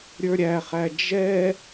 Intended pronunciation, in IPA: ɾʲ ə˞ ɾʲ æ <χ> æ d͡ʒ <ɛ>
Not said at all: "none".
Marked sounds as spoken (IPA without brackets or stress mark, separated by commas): χ, ɛ